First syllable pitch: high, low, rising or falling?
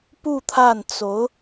falling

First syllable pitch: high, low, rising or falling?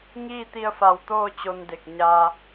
falling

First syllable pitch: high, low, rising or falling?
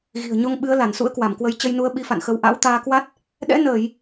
low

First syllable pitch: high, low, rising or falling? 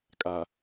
low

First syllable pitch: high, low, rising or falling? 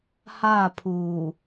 falling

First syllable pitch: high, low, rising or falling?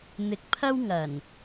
low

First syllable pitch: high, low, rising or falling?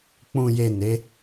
low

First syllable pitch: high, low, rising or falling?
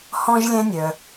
high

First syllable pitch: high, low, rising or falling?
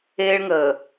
high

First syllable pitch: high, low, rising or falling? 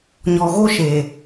low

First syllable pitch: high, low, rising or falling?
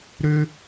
high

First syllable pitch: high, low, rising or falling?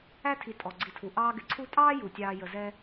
high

